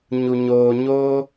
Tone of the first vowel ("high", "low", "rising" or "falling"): low